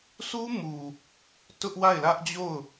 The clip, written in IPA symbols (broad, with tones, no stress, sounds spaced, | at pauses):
sʰ u˦ m u˨ | t ʊ˦ ʔ w a˦˨ ɪ̯ l ä˦ ʔ d͡ʑ o˦˨ ʊ̯